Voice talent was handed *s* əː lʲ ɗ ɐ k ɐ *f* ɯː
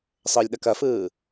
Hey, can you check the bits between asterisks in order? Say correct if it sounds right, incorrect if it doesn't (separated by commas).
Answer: incorrect, correct